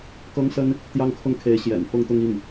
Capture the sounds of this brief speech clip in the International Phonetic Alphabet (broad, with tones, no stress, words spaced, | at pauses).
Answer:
kɤ˥ŋsə˥n | t̪jɑ˥ŋkʰʊ˥˩ŋkʰe˧˥ɪ̯ ɕjɛ̰˨˩n fʊ˥˧ŋt̪ʊ˥˧ŋ i˥˩ŋ